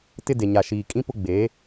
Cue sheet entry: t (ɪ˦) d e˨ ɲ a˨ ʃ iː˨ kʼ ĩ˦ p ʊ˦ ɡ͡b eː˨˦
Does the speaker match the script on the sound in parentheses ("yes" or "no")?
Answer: yes